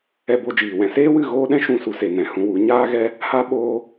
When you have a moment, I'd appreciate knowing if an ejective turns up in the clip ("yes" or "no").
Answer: no